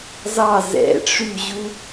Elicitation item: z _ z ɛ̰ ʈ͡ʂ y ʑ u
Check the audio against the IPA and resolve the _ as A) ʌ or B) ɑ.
B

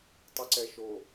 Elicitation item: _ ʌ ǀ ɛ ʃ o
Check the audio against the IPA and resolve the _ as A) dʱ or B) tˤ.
B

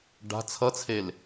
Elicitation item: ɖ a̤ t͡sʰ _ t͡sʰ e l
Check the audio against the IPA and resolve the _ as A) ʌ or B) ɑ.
A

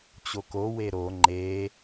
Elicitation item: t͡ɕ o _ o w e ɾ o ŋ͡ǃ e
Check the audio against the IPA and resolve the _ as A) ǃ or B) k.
B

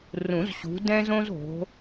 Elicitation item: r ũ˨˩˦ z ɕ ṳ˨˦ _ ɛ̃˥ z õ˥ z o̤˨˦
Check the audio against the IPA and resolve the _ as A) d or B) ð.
A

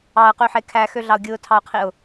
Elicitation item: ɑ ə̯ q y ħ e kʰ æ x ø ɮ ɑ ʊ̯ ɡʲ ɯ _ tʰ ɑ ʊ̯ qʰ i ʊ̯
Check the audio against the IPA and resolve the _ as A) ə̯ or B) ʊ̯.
B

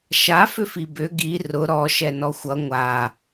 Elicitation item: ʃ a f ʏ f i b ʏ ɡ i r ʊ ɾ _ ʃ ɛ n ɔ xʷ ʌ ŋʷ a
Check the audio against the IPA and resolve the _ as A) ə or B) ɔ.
B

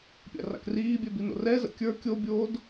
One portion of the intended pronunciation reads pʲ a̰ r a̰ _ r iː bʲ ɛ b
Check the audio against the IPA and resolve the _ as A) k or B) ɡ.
A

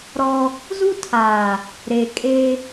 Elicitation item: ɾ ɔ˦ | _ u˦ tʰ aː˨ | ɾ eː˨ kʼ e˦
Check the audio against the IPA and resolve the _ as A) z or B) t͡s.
A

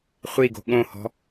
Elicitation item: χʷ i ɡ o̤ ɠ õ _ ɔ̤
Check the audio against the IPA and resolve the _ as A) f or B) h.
B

